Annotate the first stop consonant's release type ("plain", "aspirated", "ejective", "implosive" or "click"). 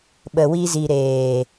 implosive